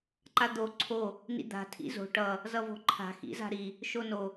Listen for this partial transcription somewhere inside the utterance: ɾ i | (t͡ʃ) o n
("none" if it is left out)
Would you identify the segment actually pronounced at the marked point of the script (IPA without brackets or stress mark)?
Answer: ʃ